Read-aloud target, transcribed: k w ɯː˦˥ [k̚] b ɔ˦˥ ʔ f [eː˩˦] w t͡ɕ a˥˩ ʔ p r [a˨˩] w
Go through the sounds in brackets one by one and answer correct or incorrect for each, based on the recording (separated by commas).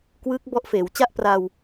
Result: correct, correct, incorrect